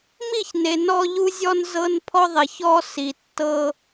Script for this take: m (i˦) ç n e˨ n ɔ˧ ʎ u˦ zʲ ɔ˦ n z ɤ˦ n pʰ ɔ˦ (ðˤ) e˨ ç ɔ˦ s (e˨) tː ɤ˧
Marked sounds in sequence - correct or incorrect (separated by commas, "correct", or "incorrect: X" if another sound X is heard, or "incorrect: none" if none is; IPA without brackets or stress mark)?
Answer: incorrect: i˦˨, correct, incorrect: i˨